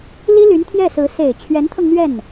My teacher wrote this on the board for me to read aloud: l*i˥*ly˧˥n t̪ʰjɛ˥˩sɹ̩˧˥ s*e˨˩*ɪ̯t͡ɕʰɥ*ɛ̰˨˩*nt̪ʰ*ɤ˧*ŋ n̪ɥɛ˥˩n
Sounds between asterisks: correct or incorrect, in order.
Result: correct, correct, incorrect, correct

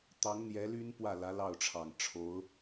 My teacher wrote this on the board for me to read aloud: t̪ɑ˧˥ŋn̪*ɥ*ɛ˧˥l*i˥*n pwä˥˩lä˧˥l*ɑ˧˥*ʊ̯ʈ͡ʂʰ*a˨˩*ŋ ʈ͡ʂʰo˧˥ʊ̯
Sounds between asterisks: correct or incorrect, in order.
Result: incorrect, incorrect, incorrect, incorrect

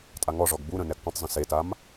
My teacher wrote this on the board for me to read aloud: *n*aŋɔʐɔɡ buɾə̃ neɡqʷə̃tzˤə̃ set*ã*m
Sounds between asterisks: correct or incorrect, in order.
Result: incorrect, incorrect

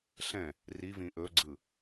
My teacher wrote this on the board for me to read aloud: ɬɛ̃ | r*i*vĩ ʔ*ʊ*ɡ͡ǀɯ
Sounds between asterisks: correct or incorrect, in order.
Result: correct, incorrect

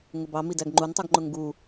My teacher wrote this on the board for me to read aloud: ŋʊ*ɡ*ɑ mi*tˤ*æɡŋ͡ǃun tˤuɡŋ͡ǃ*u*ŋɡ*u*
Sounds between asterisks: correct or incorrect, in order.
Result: incorrect, incorrect, incorrect, correct

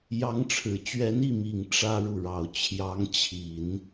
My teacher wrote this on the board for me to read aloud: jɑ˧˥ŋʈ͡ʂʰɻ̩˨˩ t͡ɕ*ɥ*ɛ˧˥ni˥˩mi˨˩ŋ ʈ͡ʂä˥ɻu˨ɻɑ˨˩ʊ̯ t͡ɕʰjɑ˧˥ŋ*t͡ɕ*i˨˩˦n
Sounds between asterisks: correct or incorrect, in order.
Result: correct, incorrect

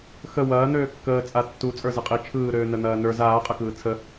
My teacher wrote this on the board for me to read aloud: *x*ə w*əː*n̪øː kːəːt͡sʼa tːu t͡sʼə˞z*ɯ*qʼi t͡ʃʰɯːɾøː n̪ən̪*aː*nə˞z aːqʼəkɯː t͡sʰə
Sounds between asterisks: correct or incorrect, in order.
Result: correct, incorrect, correct, incorrect

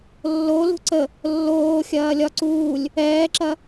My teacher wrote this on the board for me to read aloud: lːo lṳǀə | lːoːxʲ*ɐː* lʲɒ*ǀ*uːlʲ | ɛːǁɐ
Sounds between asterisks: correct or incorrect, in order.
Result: correct, correct

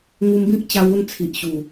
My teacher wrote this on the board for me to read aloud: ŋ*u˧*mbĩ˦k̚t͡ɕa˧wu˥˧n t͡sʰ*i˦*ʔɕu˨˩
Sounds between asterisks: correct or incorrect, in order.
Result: correct, incorrect

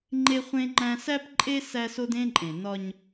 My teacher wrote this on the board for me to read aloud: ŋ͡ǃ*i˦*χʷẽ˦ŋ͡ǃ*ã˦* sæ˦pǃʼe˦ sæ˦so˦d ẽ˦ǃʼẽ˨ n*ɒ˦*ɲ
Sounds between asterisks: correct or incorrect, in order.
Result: incorrect, incorrect, correct

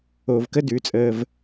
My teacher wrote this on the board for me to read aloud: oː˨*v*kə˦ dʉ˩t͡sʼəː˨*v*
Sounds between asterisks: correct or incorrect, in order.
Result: correct, correct

